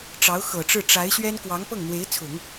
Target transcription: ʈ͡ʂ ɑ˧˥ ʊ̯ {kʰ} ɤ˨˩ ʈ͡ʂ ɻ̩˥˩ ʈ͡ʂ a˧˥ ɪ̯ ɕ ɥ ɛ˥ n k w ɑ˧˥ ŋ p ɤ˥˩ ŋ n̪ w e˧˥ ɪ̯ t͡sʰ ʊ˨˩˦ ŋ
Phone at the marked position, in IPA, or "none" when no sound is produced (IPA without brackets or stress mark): x